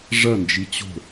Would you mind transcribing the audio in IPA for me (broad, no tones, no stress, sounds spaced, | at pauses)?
ʐ ɐ n d͡ʒ i t͡ɕ o̤